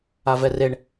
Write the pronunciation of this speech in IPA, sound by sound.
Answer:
avɛreɳ

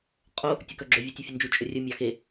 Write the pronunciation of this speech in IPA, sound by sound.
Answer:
qʼo | tʲɵkœɡ͡ǁɵ vʲetʲefʲɵnd͡ʒu t͡ʃʼɵrʲɵ mʲɑxe

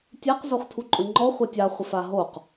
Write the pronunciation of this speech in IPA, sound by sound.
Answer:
tʲɛq zoχtʰuǃʼʊŋ͡ǃɔ χʷɛtʲa χʷefaɦoq

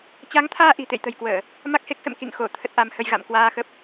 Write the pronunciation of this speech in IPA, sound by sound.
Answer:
t͡ɕa˨˦ŋt̪ʰaː˧ ʔi̤˨˩t̪ḛ˧˨jt̪ə̤˨˩jkwəː˧˩˨ | ma˦˥k̚he˦˥k̚sə̰˧˨m kḭ˧˨ŋ xo˧˩ t̪ʰə˦˥t̚ʔa˨˦mhə˧jɣa̰˧˨m kwaː˧xə˦˥p̚

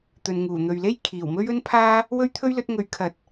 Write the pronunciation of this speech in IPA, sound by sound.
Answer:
t̪ɵ˨nŋuː˨˩n̪ɵ˨ɥle˥j kʰiː˨˩wmɵ˥ɥ ɵ˥npʰaː˥ | wɵ˥ɥt̪ʰɵ˥ɥlɵ˨˥t̚ŋɵ˨˥ɥ kʰɐ˨˥t̚

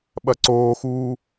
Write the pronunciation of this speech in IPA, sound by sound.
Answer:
ɓɐǀoːxuː

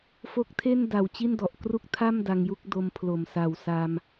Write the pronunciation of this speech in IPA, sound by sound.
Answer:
fo˦˥k̚tʰe˥˩nda˨˩w t͡ɕi˥˩ndɔ˨˩ʔkru˥˩k̚ tʰa˥˩m da˧ŋju˥˩k̚do˧m pʰlo˨˩msa˨˩w sa˧m

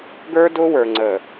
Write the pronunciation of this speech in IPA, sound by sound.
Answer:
ɡə˞˦dʊ˦wə˞˨ ŋ͡ǀə˨

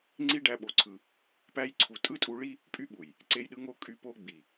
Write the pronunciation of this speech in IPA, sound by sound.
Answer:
ŋ͡ǀi˧ ɖæ˦ɓo˧ǀʰɯ˧ | pæ˧jǀʰu˨ tʼɯ˦tʼu˧ɭi˦ | pʼy˦ɓu˨j | ǀe˧jɗɯ˧ŋo˧ kʼy˦po˦ ɡ͡bi˨

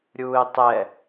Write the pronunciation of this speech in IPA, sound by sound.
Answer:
ɾʲuːɪ̯tˤɛ

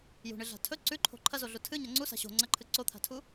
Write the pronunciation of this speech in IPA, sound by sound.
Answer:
jṳɳɨɮa̤ tʰɵ ǀʉǃʰo̤ ǃʰɐzoɮu tʰɨɲɐ ŋ͡ǀusa̤ ɕo̤ ŋ͡ǀɐǃʰɨ ǀot̪ʰa̤tʰu

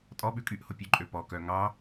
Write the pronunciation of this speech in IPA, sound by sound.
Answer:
tʼɔɓʉ kʼyʔ hopʲʉǃʼø pɔkœ ŋɑ

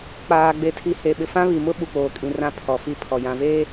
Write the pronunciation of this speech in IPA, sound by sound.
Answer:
k͡paː˨ ɡ͡be˨tʰi˨ he˨ ɓɪ˨fã˦ βi˨mʊ˦ ɓu˨k͡poː˨kʼĩ˨ rã˦pʰɔ˨fi˦˨ pʰɔ˨ jã˨veː˦

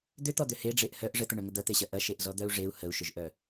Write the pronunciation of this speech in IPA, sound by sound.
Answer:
d̪ʏt̪ɔd̪ʏ heɖ͡ʐeʔ hœʔ ʐət̪əɳœŋə d̪ɐt̪eɕɐ ʔɐʃeʔzɔd̪œu̯ ʐeu̯ həu̯ʃʏʒʔœ

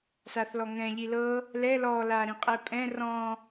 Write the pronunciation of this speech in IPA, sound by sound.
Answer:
saθlɔŋɛ̃ʎi lɤ | lɛ lɔla ɾĩqʼɛpʼɛ̃ rɔ̃

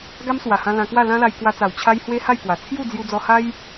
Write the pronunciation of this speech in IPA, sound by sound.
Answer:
ɡa˦m swa˨˩hã˧ lã˧kwa˥˧ lã˦la˧jkwa˧t͡sa˨˩w t͡ɕʰa˦jhwe˦ ha˥˧jkwa˨˩ t͡sʰju˥˧ d͡zju˧d͡zɔ˧ ha˦j

